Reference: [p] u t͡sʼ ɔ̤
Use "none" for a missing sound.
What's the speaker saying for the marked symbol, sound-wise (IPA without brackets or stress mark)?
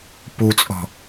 p